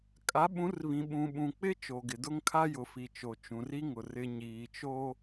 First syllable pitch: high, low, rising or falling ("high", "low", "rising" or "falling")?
rising